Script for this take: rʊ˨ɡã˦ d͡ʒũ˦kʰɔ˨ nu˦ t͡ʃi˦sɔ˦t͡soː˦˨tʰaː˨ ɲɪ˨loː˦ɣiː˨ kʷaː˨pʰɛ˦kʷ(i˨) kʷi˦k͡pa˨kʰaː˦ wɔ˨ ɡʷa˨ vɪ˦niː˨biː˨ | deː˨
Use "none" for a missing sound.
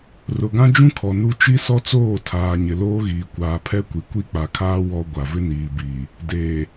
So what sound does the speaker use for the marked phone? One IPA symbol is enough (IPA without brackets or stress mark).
i˨